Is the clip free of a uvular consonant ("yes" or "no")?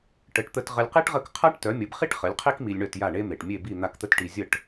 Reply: no